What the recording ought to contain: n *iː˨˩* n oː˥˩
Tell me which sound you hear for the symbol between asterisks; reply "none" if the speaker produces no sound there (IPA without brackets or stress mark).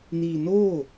iː˧